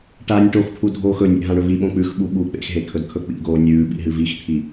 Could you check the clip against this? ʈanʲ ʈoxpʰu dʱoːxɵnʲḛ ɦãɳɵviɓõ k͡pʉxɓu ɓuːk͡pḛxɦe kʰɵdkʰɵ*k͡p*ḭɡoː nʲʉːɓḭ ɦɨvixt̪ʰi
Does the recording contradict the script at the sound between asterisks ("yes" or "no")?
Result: no